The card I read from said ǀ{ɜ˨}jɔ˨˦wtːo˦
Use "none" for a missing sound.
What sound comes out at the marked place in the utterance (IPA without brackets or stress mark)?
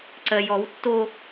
ɜ˨